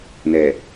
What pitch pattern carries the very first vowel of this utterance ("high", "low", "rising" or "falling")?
low